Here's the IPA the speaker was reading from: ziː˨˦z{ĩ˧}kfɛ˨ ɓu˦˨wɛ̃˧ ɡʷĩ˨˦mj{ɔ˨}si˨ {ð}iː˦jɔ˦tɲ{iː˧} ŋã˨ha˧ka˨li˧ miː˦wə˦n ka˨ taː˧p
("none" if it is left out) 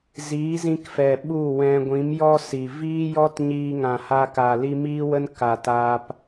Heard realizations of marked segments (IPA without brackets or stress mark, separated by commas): ĩ˧, ɔ˦, v, iː˧